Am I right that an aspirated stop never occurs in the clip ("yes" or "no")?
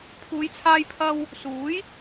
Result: no